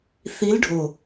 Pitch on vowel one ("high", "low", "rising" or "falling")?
rising